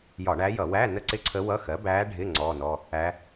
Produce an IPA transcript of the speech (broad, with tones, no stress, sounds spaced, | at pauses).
j ɒ˧˩˧ ɳ æ˧˥ j ʌ˧˩˧ w æ˧˥˧ n ə˥˧ ǀ ɪ˥˧ ǀʰ ə˧˥ w ʌ˧˥˧ x ɜ˩˥ b æː˧˥ ɖʱ ɪ˧˥˧ ŋ͡ǀ ɔː˧˥˧ n ɔ˧˥˧ | æ˧˥